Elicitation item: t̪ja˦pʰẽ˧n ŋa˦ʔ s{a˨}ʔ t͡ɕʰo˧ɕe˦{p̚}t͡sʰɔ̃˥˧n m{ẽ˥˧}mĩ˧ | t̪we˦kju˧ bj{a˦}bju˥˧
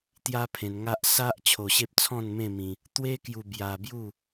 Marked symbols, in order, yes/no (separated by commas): no, yes, yes, no